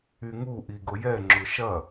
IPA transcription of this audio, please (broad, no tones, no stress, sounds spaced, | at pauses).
y ŋ u ʔ i ɡ ʊ j ɛ ŋ͡ǁ ʊ ʃ ɐ